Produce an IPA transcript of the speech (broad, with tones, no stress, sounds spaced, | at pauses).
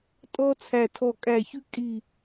tʼ ɔ˦ t͡sʰ æ˧˩ tʰ ɔ˧˩ kʼ æ˧˩ ç ʉ˦ kʼ i˧˩